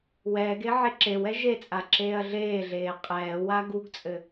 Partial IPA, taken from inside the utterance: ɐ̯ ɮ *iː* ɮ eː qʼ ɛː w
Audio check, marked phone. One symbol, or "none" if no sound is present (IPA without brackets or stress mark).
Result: eː